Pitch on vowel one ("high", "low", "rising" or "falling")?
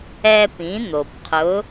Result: high